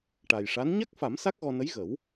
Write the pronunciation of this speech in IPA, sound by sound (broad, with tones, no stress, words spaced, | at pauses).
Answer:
ʈa˨˩jʂa˧˥n ɲa˦˥k̚fa˨˩˦m sa˦˥k̚ɣɔ˧nə˧˥j ɣə˨˩˦w